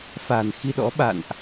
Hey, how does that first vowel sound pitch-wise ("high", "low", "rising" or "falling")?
low